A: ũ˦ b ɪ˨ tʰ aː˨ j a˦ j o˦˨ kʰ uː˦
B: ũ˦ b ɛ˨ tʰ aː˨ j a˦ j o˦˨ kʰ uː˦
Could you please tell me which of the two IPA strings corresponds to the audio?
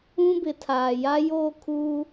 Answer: A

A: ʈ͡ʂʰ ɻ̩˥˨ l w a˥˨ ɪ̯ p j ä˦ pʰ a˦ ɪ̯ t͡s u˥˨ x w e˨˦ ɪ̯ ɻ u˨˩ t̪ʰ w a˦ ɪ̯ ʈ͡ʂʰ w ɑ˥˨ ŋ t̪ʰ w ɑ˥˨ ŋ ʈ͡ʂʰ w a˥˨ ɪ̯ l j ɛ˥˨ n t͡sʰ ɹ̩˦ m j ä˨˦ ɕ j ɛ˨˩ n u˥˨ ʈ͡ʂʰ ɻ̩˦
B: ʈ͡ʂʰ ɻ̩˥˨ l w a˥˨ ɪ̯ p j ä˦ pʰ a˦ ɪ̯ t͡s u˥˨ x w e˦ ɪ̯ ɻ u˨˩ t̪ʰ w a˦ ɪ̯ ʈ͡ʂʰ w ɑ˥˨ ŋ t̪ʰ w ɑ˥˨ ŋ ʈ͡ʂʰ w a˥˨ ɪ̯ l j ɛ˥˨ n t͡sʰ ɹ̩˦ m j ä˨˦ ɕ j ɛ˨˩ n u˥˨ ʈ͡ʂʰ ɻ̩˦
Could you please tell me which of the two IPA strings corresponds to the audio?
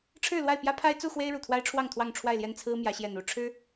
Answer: B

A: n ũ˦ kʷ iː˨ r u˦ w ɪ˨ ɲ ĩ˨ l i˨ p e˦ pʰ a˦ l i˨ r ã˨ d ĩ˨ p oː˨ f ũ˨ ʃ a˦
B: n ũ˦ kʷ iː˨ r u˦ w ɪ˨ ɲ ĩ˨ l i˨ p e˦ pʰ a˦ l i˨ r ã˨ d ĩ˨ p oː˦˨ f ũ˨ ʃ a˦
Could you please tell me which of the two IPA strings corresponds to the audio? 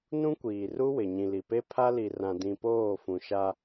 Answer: B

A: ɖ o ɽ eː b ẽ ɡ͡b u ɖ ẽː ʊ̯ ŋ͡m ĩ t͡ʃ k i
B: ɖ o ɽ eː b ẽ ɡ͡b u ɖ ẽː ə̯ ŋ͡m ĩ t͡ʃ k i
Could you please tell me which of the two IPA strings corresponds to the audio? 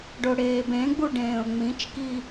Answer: A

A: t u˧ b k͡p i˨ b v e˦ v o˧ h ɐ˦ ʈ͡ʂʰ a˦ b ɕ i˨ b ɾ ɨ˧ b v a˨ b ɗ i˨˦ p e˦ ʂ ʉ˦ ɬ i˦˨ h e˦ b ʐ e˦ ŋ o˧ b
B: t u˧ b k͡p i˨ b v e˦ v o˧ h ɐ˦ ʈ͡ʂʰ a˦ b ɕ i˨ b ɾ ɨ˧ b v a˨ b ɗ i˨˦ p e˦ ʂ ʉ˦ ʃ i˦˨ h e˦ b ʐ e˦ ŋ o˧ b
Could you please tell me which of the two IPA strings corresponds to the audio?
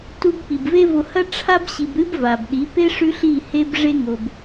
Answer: A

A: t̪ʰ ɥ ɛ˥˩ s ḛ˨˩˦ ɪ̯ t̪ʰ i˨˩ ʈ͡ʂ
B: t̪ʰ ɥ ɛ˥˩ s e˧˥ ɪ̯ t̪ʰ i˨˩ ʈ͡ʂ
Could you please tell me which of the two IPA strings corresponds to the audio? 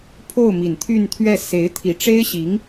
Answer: B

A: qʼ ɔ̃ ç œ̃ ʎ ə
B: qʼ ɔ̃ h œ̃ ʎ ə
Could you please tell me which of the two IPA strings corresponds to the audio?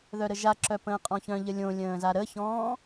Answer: A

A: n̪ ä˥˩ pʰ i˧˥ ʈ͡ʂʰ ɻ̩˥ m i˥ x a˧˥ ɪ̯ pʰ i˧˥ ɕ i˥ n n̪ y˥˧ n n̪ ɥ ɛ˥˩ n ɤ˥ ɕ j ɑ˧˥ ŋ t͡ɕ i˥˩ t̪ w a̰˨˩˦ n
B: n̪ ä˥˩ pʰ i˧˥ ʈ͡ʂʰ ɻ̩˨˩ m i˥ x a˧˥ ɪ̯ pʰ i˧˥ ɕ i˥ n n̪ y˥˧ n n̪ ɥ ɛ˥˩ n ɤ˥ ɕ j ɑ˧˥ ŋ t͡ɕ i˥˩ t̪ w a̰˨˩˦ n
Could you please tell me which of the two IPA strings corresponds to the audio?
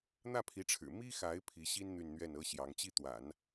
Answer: B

